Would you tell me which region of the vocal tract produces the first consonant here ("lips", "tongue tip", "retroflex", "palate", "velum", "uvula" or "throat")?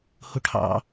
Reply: throat